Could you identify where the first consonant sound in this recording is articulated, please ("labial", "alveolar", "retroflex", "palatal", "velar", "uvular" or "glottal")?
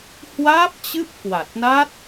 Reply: glottal